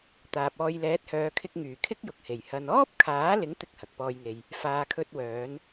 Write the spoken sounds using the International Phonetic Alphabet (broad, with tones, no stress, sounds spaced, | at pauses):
t̪ aː˨ p̚ ɔː˧ j l ɛː˨˥ t̚ h œː˨˧ kʰ ɪ˧ k̚ ŋ yː˨˩ kʰ ɪ˥ k̚ j ʊ˨ k̚ h e˨˩ j h ɐ˧ n ɔː˥ p̚ kʰ aː˨˥ l ɪ˨˥ ŋ t̪ ɪ˥ k̚ h ɐ˨ k̚ p ɔː˧ j ŋ e˨ j | f aː˧ kʰ ɵ˥ t̚ w œː˨˥ n